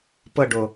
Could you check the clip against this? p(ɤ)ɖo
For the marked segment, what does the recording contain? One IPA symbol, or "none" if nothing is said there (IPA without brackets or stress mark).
ɤ